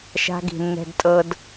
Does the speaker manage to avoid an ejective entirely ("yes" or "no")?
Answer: no